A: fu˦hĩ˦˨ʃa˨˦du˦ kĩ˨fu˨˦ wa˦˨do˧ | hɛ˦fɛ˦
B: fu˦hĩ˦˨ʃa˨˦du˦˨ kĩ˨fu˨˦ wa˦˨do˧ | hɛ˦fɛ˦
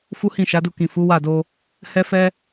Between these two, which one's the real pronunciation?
B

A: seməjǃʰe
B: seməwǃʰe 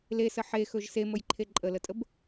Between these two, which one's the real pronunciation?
A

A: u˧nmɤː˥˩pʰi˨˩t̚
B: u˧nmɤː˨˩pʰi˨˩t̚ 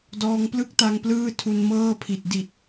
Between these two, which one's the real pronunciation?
A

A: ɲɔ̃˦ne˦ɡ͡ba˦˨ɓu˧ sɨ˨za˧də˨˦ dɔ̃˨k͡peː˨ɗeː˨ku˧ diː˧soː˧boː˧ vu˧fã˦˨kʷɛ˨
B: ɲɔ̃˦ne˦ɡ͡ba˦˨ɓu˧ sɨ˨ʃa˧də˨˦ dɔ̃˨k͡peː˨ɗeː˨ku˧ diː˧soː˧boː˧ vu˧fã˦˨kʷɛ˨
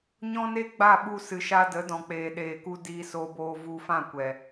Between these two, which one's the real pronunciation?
B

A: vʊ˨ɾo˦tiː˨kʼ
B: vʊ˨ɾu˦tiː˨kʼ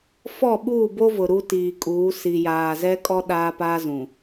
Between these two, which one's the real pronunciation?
B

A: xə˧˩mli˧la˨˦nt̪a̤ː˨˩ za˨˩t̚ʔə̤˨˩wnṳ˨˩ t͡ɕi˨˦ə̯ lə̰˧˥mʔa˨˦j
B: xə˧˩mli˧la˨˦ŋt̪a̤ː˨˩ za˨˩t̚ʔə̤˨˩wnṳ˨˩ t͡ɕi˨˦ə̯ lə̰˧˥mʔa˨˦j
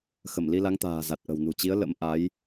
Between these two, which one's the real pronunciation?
B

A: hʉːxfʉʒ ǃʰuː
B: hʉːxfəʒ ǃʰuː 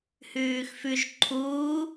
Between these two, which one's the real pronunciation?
A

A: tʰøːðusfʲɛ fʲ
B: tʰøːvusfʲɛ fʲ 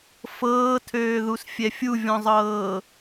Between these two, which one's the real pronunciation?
A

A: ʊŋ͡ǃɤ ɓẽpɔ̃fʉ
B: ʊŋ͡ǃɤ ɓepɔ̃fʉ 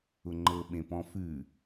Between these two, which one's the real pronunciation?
A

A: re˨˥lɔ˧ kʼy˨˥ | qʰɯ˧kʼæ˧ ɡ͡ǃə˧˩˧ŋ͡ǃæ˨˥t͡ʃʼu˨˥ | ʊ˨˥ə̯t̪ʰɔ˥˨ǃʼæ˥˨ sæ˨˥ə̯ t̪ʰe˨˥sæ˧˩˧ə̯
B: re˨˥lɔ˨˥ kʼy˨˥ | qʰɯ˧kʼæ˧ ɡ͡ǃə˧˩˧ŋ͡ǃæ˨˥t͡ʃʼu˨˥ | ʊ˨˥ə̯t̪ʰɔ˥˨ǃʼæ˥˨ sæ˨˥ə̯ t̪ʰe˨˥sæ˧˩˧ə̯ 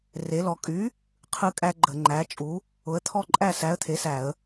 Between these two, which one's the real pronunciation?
A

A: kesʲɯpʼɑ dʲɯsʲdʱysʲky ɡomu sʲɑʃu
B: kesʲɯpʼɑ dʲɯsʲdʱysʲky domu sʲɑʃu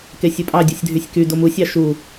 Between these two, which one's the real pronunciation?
B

